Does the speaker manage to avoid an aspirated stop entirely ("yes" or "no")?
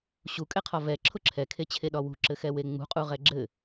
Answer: no